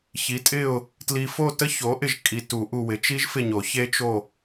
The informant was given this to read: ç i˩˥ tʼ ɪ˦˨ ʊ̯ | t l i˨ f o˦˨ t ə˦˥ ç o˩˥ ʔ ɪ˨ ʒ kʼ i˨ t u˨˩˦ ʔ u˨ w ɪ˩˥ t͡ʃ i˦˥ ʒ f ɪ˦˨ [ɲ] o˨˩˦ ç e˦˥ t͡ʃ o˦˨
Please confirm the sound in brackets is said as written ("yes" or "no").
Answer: yes